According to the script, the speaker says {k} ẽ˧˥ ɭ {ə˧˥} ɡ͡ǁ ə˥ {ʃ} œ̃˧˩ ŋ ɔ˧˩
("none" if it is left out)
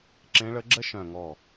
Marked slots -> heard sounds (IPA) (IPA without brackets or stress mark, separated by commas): ǁ, ə˧˥, ʃ